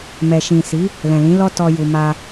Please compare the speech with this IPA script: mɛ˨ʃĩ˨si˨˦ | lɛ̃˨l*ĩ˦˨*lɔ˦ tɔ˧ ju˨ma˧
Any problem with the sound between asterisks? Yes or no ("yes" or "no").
yes